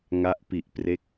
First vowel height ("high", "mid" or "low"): low